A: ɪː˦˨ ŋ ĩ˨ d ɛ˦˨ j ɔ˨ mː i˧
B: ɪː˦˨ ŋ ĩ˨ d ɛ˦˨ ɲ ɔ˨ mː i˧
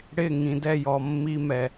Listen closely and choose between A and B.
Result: A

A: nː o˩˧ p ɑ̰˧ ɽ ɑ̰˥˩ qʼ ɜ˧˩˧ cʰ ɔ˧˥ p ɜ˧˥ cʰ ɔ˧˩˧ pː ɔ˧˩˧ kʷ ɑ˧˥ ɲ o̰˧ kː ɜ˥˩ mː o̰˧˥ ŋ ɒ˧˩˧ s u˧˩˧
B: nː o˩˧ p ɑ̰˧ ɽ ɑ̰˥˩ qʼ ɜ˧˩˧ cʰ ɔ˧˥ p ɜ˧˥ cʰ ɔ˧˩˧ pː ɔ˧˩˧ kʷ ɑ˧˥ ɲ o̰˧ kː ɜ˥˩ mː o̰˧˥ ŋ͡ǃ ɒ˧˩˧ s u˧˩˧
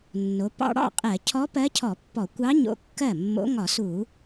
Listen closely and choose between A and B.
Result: A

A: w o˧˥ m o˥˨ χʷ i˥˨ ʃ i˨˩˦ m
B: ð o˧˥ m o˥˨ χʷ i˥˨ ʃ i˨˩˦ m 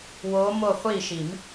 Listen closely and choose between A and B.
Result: A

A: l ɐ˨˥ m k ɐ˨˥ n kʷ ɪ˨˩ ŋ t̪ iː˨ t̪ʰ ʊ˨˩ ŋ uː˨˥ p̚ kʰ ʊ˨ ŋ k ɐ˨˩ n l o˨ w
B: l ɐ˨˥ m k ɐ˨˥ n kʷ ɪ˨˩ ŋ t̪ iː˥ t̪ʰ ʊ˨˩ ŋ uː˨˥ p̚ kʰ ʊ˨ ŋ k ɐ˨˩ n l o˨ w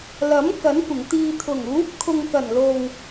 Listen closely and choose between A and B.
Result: A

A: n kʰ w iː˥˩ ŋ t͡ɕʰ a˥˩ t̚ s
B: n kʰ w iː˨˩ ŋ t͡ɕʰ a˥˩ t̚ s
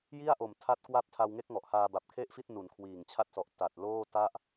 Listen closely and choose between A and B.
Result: B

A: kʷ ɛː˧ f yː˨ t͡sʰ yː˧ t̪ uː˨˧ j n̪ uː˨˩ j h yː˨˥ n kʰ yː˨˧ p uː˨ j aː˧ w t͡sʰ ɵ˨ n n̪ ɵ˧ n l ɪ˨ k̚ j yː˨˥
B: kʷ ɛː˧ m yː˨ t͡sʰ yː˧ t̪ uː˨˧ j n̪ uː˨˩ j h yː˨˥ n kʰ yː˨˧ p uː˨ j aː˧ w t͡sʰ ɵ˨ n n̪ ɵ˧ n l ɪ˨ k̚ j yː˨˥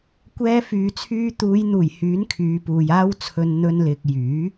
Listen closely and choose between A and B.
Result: A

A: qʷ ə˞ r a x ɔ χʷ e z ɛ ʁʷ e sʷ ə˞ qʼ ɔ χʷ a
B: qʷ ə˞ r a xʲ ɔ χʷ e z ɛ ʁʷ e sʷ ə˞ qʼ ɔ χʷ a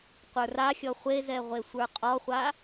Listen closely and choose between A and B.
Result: B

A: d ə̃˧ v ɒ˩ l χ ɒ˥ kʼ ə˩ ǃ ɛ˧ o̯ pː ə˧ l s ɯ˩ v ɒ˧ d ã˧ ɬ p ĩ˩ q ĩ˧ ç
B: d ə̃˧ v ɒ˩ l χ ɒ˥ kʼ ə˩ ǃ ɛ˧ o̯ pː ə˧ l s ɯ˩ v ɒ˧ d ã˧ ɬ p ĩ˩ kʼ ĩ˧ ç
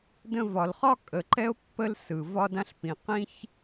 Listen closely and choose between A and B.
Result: A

